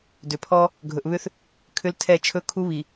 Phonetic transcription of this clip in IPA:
d ʏ˨ pʰ ɔ˦ | ɡʱ ɵ˨ ʔ β ʏ˦ θ | kʰ ʏ˦ l tʰ ɛ˦˨ t͡ʃʰ ɵ˦ kʰ u˦ β i˨

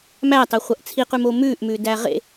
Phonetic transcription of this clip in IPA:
m æ tˤ e χʷ ɐ ʔ t͡sʰ i q ʉ m o m ʉː ʔ m ʉ d æ ʁ ḛ

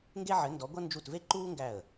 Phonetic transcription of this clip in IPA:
ŋ ɡ e˦ ʕ ɘ˨˦ n d ɔ˨˦ ɡʷ ʌ˦ n d͡ʒ u˧˩ t v e˦ ǃ uː˦ ŋ ɡ æ˧˩ ə̯

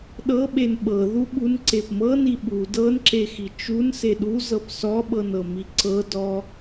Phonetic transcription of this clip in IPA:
ɗ ɤ ɓ e n ɓ ɤ ð u ɓ u n ǀ e p m ɤ n i ɓ u d ɤ n ǁ e x i t͡ʃ u n s e ɗ u z ɤ p s ɔ ɓ ɤ n ɤ m i ǀ ɤ d ɔ

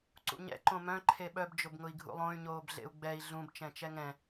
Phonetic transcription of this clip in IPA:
ǀ ṵ ɲ ɛ̰ ǃ õ m œ̃ ǃʰ e ɓ œ b d͡ʒ ʊ b ŋ ʊ i̯ ɡʱ ṵ lˠ õ y̯ ɲ oː b ɮ ḛ u̯ ɡ͡b ɛ i̯ ɮ ũ b t͡ʃ ɛ̃ t͡ʃ ɛ ŋ ɛ̃

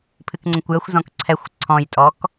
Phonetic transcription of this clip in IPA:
pʰ ɨ k ŋ͡ǀ ə̃ kʷ j ə xʷ z ɔ̃ k ǀʰ ɛ xʷ ǀʰ ɔ̃ j tʼ ɔ k

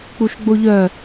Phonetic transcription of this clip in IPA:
k͡p u ʃ ɡ͡b o ʎ œ

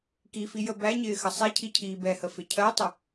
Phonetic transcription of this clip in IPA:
k i f i j ə b æ ɲ ɪː x ə sˤ ɛ cʰ i cʰ iː b ɛ h ə f ɪ cʰ ɜ tˤ ə

